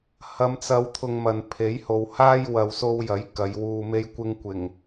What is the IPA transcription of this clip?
hɐ˨˧mt͡sɐ˨˧wt̪ʰʊ˨ŋ mɐ˨npʰe˨˥jho˨w haː˥j wɐ˨wso˧wjɐ˨˥j kɐ˨˧jwuː˧me˥j kʷɪ˧ŋkʷɪ˨˩ŋ

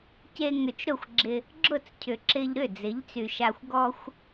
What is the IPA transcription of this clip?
ce˧ ŋʏ˨t͡ʃɾʊ˦˨xʷɡ͡ǁɪ˧ | ɡ͡ǁʊ˦˨t͡s cʰʏ˨ǁɪ˧ʎɾʏ˦˨ d͡zɪ˨˦ʎt͡sy˨ʃa˧xʷ ɡɔ˦xʷ

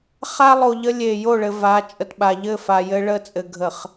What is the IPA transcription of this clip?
χa˦lˠo˨ʎə˦ lʲe˨ jo˦˨ɭɘ˨ va˨˦ t͡ʃʼə˨tɓa˨ ʎɘ˦˨ fa˨jɘ˦ ɭə˦ t͡sʼɘ˨ɡʱə˨χ

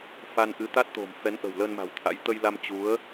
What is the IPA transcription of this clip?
fa˧nʔɨ˨˦t̪a˦˥t̚t̪o̤˨˩m fɛ˨˦nʔə̤˨˩wlə˧nma̤˨˩w t̪ʰa̰˧˥j t̪ə˧jla˧m t͡ɕu˨˦ə̯

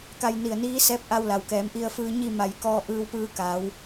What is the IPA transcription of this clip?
ka˧jni˧˩ə̯niː˧˥ sɛː˧˥p̚ʔa˧w la˩wkɛː˩˧mʔi˧ə̯fɯː˧ ɲi˥˨ma˧˩jkɔː˧ ʔɯː˧wpɯː˧ka˩˧w

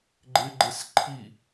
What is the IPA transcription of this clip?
ɡ͡ǃɪɡ͡ǃɪs ǃʰi

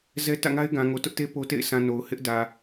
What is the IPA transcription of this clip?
zɛ˦ tä̰˦˨ŋa˦ɪ̯ɡã˨ ŋo˨tʊ˦ʔte˦ po˦tḛ˦˨ɪ̯ sʰã˨ no˨ʊ̯ hɪ˦ʔ dä˨

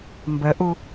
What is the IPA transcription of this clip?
mbəʔu

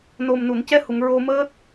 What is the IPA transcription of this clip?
no˨˩mnu˨˩˨ncɛ˧˥hu˨˩˨ŋ ɹo˧məː˦˥t̚

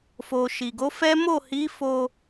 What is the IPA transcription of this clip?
fo˨ʃi˨ɡo˨˦fɛ˦ mo˦˨hi˨˦fo˧

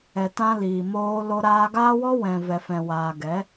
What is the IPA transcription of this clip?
ɛ˨ tã˦liː˨ moː˧lo˧ ɾaː˧ɡaː˦wɔ˦ wɛ̃˨vɛ˨fɛ̃˨ waː˨ɡɛ˨˦

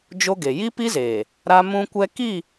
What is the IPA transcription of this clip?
d͡ʒo˦ɡe˨ ji˦pi˦zeː˨ | ɾa˦mũ˦kʷɛ˦ ki˦˨

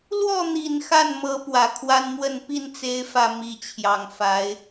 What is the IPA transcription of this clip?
lwɔ˥˩n̪i˨˩n xa˥˩nmɤ˧˥ pwä˨˩kʰwa˥nmwə˥˧n pi˥˩nt͡se˧˥ɪ̯fä˨˩ mi˧˥t͡ɕʰjɑ˨˩ŋfa˧˥ɪ̯

